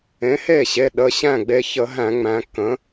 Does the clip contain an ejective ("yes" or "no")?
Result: no